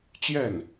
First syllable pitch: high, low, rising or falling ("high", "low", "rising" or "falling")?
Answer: falling